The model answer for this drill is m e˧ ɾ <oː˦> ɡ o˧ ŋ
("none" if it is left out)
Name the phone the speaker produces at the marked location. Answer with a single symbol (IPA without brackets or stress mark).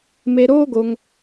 oː˦